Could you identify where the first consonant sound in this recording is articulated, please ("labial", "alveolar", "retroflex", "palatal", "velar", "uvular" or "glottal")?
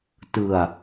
alveolar